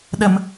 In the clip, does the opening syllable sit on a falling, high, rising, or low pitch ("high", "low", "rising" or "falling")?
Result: low